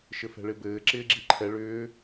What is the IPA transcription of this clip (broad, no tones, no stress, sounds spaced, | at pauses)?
ʃ ɘ f ɛ̤ ɭ ɪ b ɘː ǁ ɪː ɡ͡ǁ i ǃʰ ɛ ɭ ʏː